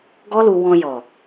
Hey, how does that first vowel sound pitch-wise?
high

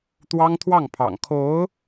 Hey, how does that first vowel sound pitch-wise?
high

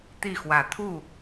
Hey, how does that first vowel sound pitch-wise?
falling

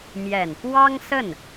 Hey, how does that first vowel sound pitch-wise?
low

